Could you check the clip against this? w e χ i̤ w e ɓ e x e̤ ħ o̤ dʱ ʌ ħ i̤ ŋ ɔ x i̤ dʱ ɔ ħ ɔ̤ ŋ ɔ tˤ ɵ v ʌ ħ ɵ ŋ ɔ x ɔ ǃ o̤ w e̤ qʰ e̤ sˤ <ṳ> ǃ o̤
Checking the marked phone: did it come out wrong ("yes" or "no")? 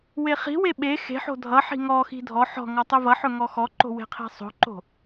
yes